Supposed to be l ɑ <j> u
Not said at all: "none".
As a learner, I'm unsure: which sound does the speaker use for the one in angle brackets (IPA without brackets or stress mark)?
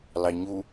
ɲ